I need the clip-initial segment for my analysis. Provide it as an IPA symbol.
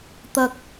t̪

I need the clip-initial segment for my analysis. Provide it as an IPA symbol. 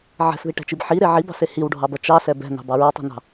ʕ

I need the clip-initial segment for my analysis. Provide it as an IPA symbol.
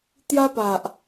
t̪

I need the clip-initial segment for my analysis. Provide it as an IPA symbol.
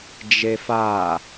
d͡ʒ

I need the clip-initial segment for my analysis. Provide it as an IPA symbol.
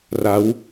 r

